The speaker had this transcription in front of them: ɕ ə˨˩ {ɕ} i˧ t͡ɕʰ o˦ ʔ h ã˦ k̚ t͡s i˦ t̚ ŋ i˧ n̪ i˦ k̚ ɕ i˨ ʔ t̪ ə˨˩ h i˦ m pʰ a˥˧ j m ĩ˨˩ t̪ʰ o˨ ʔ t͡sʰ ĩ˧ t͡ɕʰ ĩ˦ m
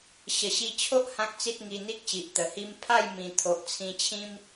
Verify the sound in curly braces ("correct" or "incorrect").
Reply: correct